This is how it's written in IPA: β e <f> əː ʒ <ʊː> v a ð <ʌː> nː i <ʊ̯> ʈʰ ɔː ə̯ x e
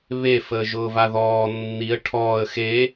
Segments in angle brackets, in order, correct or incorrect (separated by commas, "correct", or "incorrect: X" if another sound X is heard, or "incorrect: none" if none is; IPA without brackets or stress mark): correct, correct, incorrect: ɔː, incorrect: ə̯